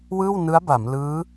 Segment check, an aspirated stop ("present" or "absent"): absent